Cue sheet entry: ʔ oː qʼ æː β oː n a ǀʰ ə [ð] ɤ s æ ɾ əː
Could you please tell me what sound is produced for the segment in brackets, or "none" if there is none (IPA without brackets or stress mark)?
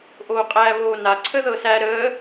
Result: ð